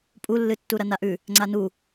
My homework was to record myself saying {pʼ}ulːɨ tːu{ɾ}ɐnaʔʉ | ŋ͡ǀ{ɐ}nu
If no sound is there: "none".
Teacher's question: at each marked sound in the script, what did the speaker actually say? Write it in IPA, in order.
pʼ, ɾ, a

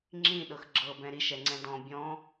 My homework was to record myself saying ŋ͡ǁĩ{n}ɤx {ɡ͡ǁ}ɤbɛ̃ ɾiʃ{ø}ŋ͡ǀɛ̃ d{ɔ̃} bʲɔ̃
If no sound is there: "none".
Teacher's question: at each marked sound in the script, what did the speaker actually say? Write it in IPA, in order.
ɗ, ɡ͡ǁ, ɛ, ɔ̃

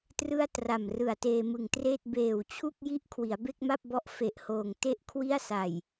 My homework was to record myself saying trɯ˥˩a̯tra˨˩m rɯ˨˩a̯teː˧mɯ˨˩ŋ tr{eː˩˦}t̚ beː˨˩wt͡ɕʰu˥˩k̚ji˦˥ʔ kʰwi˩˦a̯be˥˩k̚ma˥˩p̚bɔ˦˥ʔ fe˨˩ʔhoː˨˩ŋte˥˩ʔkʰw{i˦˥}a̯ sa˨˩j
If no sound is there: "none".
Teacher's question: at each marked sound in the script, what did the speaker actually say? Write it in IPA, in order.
eː˥˩, i˥˩

